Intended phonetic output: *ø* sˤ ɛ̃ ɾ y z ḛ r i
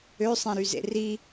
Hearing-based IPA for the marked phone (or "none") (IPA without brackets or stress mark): ø